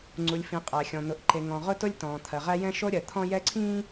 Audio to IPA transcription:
ŋ͡ǀu˨lʲfĩ˨ qʼæ˨xʲɔ̃˨ n̪ʊ˨ʔǃe˨ ŋɔ̃˨ʁʊ˦ tʊ˦lʲtɔ̃ː˨t̪ʰɜ˨ʁæ˦ jɛ̃˦ʃo˦ɾʲɜ˨ t̪ʰɔ̃˦jɛ˦ǀʰĩː˦

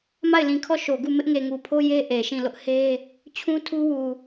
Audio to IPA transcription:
ma˦˨ɪ̯lĩ˨kʰɔ˦˨ ʃo˨ɡu˦˨ mɪ˦ʔŋe˨ŋu˨pʰo˦ je˦ ʔe˨ʃĩ˦˨lʊ˦ʔ he˦ | t͡ɕʰũ˦tʰu˦ wu˨

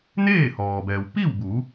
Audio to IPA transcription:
neː˥˨ hɔː˩bɛː˩w pi˥˨wbu˩˧

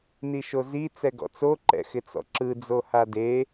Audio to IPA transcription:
niʃozi t͡sɛɡɔ̰t͡so ǃɛ̰xɪt͡sɔ̰ǁɯ d͡zohade

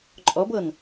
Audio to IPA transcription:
ǃʼɔbɤn

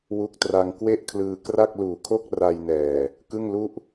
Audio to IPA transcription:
wu˦˥k̚tra˧ŋ kwe˥˩ʔkʰlɯː˧ kra˥˩k̚luː˨˩ kʰo˥˩k̚ ra˧jnɛː˨˩ | kɯ˥˩ŋlu˥˩ʔ

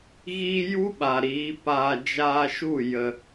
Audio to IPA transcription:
ɣiː˦ ju˦ɓa˨ ɾiː˨˦paː˧ d͡ʒaː˧ʃu˦˨ jə˧

